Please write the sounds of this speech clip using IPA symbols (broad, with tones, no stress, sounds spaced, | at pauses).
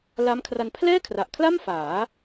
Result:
l a˦˥ m kʰ r a˧ n pʰ l ɛː˥˩ kʰ r a˨˩ ʔ kʰ l a˥˩ m f aː˩˦